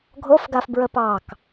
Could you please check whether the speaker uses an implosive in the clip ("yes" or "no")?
no